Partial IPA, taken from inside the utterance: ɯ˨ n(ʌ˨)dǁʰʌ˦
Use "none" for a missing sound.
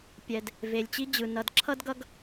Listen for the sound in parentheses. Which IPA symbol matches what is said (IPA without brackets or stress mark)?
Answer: ʌ˨